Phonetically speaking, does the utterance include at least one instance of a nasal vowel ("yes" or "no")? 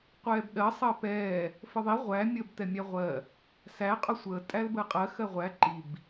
no